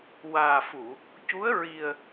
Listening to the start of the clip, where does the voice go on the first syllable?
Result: low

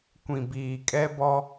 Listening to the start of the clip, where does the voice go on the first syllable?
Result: low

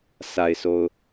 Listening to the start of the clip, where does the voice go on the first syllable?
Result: low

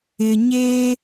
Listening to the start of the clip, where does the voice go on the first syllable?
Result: low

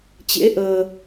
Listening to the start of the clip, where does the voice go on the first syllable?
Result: rising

